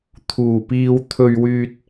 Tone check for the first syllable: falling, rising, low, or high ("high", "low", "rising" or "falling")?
low